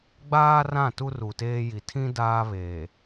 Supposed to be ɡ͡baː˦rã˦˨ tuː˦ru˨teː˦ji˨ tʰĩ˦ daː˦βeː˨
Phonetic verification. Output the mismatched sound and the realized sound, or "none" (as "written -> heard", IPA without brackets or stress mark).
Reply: uː˦ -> u˦